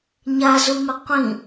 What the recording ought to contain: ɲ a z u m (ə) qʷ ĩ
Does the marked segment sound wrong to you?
no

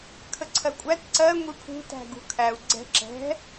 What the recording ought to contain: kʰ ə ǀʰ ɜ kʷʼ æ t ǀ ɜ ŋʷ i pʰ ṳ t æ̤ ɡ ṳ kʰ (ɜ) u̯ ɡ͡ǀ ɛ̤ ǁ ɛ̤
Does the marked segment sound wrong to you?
yes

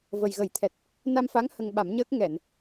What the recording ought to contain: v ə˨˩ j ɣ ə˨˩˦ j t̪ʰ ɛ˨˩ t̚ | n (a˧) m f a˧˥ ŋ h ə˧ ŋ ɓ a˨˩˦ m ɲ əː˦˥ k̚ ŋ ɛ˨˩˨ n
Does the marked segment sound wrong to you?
no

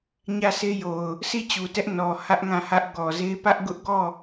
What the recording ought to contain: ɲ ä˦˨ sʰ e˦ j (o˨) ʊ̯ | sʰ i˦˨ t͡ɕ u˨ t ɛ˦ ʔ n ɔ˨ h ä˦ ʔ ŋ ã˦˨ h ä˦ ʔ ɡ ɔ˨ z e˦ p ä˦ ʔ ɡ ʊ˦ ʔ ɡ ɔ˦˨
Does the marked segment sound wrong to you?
no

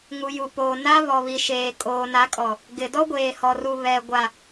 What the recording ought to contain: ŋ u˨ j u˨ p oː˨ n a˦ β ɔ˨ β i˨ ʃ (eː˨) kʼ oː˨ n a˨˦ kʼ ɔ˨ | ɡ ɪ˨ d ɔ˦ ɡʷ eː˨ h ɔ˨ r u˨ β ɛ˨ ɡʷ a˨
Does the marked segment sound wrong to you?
no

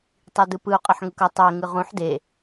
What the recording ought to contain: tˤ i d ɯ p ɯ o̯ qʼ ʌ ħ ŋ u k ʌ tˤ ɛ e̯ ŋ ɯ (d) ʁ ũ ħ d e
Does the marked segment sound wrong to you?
yes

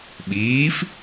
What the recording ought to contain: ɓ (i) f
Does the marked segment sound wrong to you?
yes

